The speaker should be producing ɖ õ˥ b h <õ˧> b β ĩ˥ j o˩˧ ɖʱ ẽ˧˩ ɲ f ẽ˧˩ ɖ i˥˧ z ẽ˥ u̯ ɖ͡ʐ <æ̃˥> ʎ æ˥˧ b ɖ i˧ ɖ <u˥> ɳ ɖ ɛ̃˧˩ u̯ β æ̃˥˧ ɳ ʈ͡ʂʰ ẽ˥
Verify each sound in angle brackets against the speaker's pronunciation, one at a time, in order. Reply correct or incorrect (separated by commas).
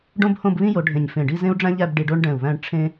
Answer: incorrect, correct, incorrect